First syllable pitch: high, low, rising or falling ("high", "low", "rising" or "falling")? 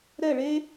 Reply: falling